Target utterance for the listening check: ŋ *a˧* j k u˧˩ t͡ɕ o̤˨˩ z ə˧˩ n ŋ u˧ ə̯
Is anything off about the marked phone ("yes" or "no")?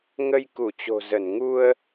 yes